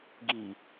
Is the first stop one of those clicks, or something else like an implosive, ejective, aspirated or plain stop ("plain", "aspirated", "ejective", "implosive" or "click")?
plain